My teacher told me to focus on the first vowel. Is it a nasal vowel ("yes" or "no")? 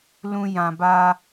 yes